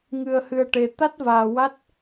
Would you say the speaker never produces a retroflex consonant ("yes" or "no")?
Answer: no